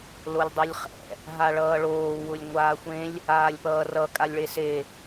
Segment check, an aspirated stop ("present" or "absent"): absent